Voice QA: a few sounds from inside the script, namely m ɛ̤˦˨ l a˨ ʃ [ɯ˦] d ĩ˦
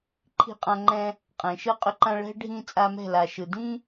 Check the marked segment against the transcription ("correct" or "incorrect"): incorrect